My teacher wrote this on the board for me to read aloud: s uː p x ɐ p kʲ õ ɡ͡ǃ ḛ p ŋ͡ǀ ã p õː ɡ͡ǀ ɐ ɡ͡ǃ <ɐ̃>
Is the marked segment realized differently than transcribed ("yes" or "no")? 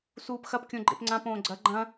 no